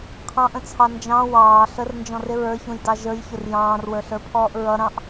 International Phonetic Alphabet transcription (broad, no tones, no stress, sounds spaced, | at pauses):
qʰ ɑ̃ ʔ ə̃ t͡sʰ ɑ n d͡ʒ ɑ̃ w ɑː ɬ ə r n d͡ʒ ɔ̃ r ɪ ɹ ə˞ ç ũ j d ɑ ʒ ə˞ j ç ʊ r j ɑ̃ː r w ə˞ ɬ ə˞ pʰ ɔː ʔ ɹ ʌ ɾ ɑ̃ ʔ